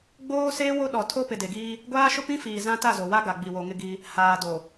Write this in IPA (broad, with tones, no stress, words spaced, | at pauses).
ɡ͡boː˦ seː˦wo˦ ɗɔ˨tʰo˦ pɪ˨de˨ɡiː˦ | ɡʷaː˦ʃʊ˦pĩ˦fiː˨ zã˦ ta˦˨zo˨wa˦ ɡa˨ ɡ͡bi˨wo˨ ŋɪ˦ɡi˦ | haː˨do˨